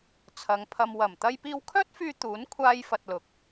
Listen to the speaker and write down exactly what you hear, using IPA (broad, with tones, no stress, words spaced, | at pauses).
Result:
t͡sʰɐ˨˧ŋpʰɐ˧m wɐ˨˩m t̪ɐ˧jpiː˧wkʰœː˥t̚fyː˧ t̪uː˨˥n kʷʰaː˥jfɐ˧t̚lʊ˨k̚